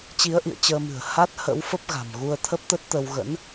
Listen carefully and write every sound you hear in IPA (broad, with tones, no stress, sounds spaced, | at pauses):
t͡ɕ i˨˦ ə̯ ʔ ḭ˧˨ ə̯ t͡ɕ əː˧ m ɨ̤˨˩ ə̯ h a˦˥ t̚ h ə̰˧˥ w f ə˦˥ p̚ ɣ a̤˨˩ m ɣ u˧ ə̯ t̪ʰ ə˦˥ p̚ t̪ ə˦˥ t̚ t̪ ə˧ w ɣ ə̰˧˥ n